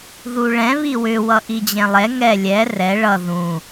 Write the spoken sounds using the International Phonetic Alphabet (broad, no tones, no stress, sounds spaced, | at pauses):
ð u ɭ ɛ̃ β i w ʏ w ʌ ʔ i d͡ʑ ɛ̃ lˠ ɛ ŋ ɛ lʲ ɛ r ɛ ɭ ʌ ð ũ